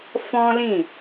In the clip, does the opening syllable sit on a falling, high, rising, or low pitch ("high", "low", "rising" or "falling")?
high